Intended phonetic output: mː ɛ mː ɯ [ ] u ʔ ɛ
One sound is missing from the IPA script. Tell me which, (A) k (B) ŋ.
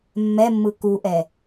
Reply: A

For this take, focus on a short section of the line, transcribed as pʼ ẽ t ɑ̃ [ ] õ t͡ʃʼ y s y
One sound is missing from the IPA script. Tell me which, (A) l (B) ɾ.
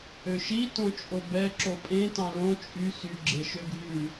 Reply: A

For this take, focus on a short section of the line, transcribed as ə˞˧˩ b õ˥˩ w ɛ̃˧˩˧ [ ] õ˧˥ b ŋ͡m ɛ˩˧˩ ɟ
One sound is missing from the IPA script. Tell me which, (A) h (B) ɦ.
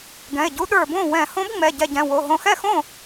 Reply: A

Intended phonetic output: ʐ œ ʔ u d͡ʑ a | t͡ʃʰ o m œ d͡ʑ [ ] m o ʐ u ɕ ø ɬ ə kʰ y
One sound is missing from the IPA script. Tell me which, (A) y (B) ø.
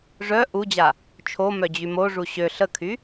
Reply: A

